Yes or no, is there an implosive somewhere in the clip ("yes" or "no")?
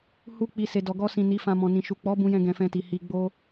no